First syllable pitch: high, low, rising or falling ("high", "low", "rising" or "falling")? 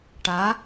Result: rising